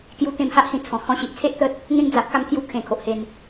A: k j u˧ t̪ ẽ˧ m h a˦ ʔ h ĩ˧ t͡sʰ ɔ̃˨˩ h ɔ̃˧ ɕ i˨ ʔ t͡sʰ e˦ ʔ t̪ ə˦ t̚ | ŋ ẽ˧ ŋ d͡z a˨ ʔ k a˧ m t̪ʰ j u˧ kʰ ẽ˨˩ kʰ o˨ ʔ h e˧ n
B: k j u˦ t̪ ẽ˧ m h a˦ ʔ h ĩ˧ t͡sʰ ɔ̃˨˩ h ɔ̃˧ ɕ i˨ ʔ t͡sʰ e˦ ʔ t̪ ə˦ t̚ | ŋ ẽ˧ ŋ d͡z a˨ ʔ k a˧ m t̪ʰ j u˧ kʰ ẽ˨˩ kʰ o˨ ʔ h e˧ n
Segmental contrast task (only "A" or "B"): A